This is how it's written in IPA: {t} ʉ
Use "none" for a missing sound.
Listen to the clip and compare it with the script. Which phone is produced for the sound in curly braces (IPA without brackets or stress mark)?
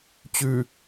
t͡ɕ